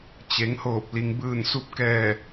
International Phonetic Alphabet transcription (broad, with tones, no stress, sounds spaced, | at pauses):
t͡ɕ e˩˧ ŋ h oː˧˩ p̚ l i˩ ŋ b ɯː˧˩ n s u˧ p̚ k ɛː˧˩